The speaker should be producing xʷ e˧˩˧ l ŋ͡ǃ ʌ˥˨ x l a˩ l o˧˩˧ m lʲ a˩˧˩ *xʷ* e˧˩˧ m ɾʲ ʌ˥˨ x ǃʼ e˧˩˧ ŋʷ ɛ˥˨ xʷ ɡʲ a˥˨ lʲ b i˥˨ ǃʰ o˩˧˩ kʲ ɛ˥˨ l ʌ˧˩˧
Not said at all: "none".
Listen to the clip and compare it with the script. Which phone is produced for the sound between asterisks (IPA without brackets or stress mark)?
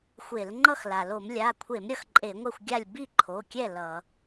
kʷʰ